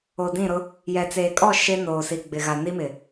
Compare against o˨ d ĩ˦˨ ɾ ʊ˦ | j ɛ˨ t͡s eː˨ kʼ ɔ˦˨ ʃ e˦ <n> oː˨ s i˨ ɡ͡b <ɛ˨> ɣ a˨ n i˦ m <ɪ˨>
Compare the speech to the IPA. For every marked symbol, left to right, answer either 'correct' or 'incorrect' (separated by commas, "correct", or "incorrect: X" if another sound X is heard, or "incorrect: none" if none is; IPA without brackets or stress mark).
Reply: correct, incorrect: ɪ˨, correct